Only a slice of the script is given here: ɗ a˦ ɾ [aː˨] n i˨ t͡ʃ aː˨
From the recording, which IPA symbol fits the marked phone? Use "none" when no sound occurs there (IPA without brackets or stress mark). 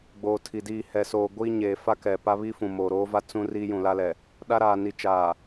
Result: aː˨